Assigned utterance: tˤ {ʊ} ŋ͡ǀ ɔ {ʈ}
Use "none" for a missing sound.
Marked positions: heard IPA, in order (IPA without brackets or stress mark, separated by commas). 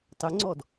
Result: ʊ, d